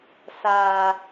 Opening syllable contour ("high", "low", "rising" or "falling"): low